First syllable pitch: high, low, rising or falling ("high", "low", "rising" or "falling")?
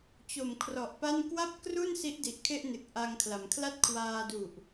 low